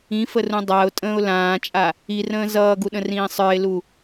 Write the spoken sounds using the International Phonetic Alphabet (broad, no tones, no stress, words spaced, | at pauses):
ĩfərũ dˤaʊ̯tʼə̃ːʊ̯ lãːt͡ʃʼa | irə̃ː zʌːɡuɗə̃rĩː sˤə˞ɪ̯lu